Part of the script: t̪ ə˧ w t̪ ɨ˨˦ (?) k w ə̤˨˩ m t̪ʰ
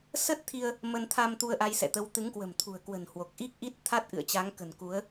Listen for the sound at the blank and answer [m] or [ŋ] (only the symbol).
ŋ